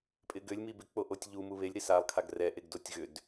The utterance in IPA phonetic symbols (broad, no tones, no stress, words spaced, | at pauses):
pʼɪɡʏlʲ mibɪ k͡poʔotʲʎu muβelʲ ɾisalˠ kʰaɡrɛ ʔeɡdotʲɣʏd